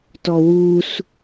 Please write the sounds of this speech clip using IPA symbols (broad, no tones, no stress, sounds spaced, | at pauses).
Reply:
t ɔ w u s